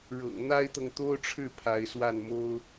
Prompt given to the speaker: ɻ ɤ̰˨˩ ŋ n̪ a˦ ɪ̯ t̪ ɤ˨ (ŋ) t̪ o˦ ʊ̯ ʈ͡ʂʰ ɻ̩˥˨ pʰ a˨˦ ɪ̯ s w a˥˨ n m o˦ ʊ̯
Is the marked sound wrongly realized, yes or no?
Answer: no